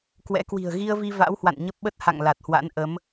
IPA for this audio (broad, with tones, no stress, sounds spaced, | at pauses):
k w ɛ̰˧˥ k w i̤˨˩ ə̯ ɣ i˧ ə̯ v i˧ v a̰˧˥ w h w a̰˧˨ n ɲ ə˦˥ p̚ ɓ ə˦˥ t̚ h a̰˧˨ ŋ l a˨˩ t̚ h w a̰˧˥ n ʔ ə˨˦ m